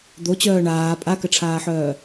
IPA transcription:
d̪ o t͡ɕ œː ɳ aː pʼ a k ə ʈ͡ʂʰ aː ħ œː

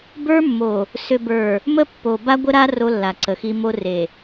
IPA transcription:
b ə˞˦ mː o˨ | s ʏ˨ b ə˞˨ | m ə˦ pː o˨ b a˦ ɡʷ ə˦ ɾ a˦ r o˦ lː a˨ ǀ ə˨ x i˦ m o˦ r e˨

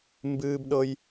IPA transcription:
m b ɨː˦ b ɗ ɤ˦ j

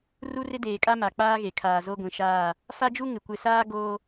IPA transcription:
r u˦ r ɪ˦ d eː˨ kʼ a˦ m a˨ k͡p aː˦ ɣ e˨ kʰ aː˨ z o˦ ɡʷ ĩ˨ ʃ aː˦˨ | f a˦ d͡ʒ u˦ ŋ ɪ˨ kʷ ɪ˨ s aː˦ ɡ oː˦

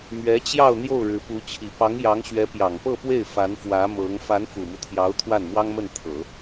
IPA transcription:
m ɥ ɛ˧˥ t͡ɕ j ɑ˥˧ ʊ̯ n̪ j o˥˩ ʊ̯ ɻ ɻ̩˧˥ p u˧˥ t͡ɕʰ i˨˩ p ɑ˧˥ ŋ j ɑ˧˥ ŋ ɕ ɥ ɛ˧˥ p j ɑ˨˩ ŋ p ɤ˥˧ p w e˥˩ ɪ̯ f a˧˥ n f w ä˧˥ m ɤ˧˥ ŋ f a˧˥ n f u˨˩ m u˦ t̪ʰ j ɑ˧˥ ʊ̯ t̪ʰ w a˥˩ n m w ɑ˥ ŋ m ə˥˩ n t̪ʰ ɤ˨˩˦

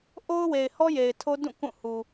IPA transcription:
ʔ o˦ ʊ̯ w e˨ ɪ̯ h ɔ˦ j e˨ ɪ̯ tʰ o˦ d ũ˦˨ k ũ˦˨ h u˨

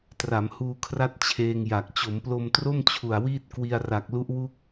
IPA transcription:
t r a˩˦ m h uː˧ kʰ r a˥˩ t̚ t͡ɕʰ eː˧ ŋ j a˨˩ k̚ t͡ɕ o˩˦ m p l o˧ m t r o˥˩ m t͡ɕʰ u˨˩ a̯ w iː˥˩ t̚ k w i˧ a̯ r a˨˩ k̚ l u˦˥ ʔ w u˥˩ k̚

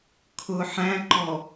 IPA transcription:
kʰ ʊ ħ æ̃ ǃ ɔ

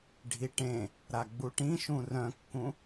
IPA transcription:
ɖʱ i ʈ ẽ | ɾ a ɡ͡b u ʈ ĩ ʃ ũ r œ̃ kː ũ

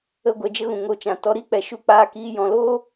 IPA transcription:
ə˧ ɡʷ ɛ˧ d͡ʒ ə˦ ɣ ũ˨ ŋ o˨ t͡ʃ ã˨ t ɔ˧ ɾ i˦ k͡p ɛ˨ ʃ u˧ k͡p aː˧ k iː˧ j ɔ̃˨ l oː˦

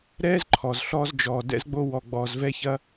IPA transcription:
ɾ ɛː˥ z ǃʰ ɔ˩ z ɬ ɔː˧ z d͡ʒ ɔː˩ d ɛ̰˧ z ɡ͡b o˧ w ɔ˩ ɡ͡b ɔː˩ z v ɛ˧ ç ɐ˧

